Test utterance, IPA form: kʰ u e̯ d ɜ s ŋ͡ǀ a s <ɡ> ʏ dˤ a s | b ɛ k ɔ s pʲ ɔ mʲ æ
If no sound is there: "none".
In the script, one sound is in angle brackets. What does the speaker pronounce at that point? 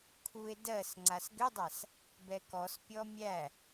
ɡ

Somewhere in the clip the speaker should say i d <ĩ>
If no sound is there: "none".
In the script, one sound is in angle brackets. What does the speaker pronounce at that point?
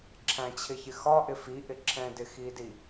i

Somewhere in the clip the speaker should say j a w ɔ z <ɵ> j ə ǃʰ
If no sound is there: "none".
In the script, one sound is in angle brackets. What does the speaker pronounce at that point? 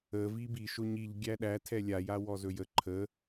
ɵ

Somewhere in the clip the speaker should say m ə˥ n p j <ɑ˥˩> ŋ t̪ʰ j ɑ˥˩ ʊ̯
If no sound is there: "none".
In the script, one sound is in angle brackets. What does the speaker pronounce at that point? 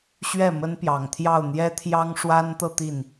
ɑ˨˩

